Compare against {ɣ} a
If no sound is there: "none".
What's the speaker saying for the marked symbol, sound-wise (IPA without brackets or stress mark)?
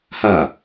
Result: h